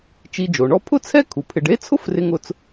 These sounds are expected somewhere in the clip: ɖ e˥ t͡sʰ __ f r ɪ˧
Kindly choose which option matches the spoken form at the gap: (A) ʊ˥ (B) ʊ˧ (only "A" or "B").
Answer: A